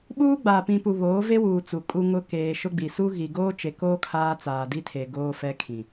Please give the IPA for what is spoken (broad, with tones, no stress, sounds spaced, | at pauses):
ɓ uː˦ ɡ͡b aː˨ p ĩ˨ p u˨ β oː˨˦ v e˦ w uː˨ t͡s u˨ kʼ u˦ ŋ ʊ˦ k eː˨ ʃ ʊ˦ ɡ͡b i˨ s u˦ ɣ i˨ ɡ oː˦ t͡ʃ e˨ k oː˦ kʰ aː˦ t͡s aː˨ d i˦ tʰ e˨ ɡ oː˦ f ɛ˦ kʰ ĩ˨